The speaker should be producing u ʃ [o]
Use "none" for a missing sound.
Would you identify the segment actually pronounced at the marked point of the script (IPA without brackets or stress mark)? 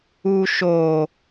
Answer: o